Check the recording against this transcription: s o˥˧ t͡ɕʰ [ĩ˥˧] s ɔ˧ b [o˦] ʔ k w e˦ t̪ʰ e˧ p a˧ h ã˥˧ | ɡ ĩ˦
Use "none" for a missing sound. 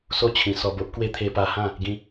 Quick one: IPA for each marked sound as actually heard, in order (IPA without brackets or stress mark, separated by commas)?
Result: ĩ˧, o˦